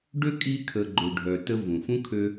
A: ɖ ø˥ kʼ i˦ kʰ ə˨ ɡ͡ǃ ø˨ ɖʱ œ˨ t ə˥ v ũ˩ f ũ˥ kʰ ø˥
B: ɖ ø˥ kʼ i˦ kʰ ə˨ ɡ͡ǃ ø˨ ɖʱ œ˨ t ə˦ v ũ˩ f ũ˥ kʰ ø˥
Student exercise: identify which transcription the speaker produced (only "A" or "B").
B